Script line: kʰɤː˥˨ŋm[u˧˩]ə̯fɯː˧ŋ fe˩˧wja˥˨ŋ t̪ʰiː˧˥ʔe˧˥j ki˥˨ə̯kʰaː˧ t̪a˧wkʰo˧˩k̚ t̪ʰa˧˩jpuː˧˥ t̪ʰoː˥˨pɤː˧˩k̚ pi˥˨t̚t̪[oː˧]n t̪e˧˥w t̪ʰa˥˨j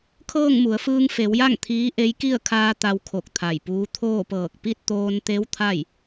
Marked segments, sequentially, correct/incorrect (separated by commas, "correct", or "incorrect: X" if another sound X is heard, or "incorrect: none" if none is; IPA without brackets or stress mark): incorrect: u˩˧, correct